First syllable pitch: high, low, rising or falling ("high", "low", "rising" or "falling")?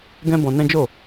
high